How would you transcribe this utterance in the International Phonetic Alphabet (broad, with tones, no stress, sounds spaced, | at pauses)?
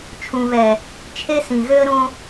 t͡ʃʰ ũ˨ β ɛ˨ | t͡ʃʰ e˦ s ĩ˨ ɣ ø˦ ə̯ ɾ õ˦